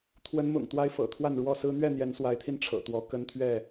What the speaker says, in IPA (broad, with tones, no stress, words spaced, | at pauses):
t̪ʰwə˨˦nmʊ̰˨˩ŋ t̪wa˦ɪ̯fɤ̰˨˩t̪ʰwa˥˨n ɻwɔ˥˨sɹ̩˦ n̪ɥɛ˥˨n̪jɛ˨˦nswa˨˦ɪ̯t̪ʰi˧n ʈ͡ʂʰɤ̰˨˩t̪wɔ˨˦ kə˦nt̪ʰɥɛ˥˨